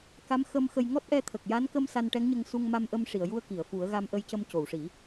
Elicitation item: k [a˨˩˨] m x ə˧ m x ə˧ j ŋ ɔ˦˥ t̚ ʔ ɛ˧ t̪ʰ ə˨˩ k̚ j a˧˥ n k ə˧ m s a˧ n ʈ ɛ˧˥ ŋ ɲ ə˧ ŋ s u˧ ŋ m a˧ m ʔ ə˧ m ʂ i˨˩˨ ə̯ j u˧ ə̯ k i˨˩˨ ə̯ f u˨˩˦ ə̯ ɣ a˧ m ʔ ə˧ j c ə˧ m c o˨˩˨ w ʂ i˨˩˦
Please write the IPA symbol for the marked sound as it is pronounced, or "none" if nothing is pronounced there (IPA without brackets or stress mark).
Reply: a˧˥